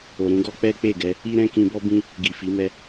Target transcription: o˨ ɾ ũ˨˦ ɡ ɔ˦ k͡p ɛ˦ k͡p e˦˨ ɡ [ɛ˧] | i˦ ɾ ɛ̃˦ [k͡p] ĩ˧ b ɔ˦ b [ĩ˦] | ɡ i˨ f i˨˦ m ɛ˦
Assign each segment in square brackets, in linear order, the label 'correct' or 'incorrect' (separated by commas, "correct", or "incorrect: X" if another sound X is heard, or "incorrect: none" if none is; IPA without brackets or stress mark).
correct, incorrect: k, correct